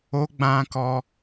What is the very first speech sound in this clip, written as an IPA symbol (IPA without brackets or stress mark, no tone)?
o